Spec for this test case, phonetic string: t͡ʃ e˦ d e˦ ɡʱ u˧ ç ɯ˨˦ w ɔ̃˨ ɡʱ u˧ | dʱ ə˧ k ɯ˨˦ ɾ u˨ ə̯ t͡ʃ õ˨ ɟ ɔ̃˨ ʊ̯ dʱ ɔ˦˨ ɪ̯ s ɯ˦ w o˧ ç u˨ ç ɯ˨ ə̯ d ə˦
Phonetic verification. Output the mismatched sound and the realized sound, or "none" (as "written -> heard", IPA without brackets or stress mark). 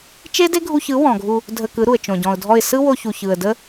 none